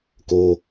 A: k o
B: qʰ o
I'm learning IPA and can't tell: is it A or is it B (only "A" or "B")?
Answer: A